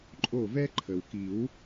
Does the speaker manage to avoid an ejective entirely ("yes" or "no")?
no